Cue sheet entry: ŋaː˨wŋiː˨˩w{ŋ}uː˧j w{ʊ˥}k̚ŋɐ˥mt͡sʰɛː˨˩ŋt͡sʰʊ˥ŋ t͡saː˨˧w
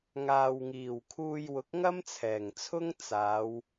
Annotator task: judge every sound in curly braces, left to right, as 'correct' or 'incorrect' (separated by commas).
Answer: incorrect, incorrect